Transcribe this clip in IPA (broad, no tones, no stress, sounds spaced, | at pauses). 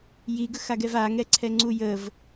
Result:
j i ɡ ə x a ɡ ɛ v a ŋ ɛ ǀʰ ɛ ŋ͡ǀ u j ə v